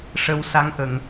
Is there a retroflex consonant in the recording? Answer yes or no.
yes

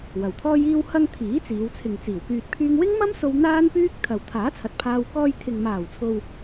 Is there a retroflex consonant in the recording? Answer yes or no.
no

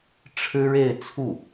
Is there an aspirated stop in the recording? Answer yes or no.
yes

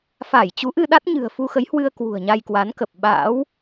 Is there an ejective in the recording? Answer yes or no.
no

